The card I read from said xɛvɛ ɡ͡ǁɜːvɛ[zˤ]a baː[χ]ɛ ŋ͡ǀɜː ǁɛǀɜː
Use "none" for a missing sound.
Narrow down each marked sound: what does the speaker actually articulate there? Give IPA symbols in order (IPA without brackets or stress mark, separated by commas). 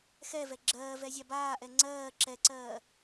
zʲ, ʔ